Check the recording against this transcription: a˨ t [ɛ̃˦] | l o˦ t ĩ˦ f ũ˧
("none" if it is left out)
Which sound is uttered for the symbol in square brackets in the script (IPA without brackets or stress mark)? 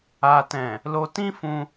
ɛ̃˨